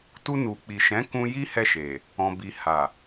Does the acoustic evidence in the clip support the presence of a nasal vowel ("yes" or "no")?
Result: yes